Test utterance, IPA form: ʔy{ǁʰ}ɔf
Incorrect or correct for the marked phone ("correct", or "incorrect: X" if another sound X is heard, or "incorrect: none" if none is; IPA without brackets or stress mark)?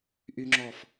incorrect: ŋ͡ǁ